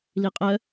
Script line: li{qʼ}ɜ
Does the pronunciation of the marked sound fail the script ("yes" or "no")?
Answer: no